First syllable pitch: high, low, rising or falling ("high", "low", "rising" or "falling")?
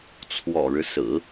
low